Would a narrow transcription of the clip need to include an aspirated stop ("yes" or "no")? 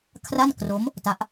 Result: yes